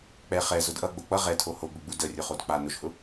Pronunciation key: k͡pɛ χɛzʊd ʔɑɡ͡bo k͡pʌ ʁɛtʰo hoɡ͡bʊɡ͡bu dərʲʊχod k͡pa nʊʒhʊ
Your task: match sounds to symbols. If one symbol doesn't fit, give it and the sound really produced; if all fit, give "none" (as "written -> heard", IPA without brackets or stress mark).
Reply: ɑ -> ʌ